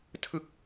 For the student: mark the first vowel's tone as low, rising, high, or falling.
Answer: falling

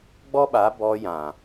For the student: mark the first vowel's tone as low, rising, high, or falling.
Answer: high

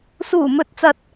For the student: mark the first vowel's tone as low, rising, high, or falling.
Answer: low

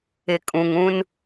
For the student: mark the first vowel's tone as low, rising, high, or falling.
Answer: low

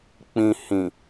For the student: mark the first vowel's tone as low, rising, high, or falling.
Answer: low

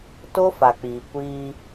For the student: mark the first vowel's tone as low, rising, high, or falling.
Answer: high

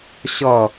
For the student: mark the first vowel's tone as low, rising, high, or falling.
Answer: falling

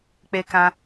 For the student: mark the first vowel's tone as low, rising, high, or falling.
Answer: high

